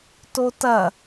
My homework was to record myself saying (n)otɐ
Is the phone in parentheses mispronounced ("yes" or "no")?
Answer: yes